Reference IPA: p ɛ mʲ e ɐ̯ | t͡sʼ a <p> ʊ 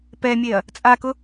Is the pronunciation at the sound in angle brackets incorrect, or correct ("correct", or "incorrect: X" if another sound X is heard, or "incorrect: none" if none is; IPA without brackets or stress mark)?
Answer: incorrect: k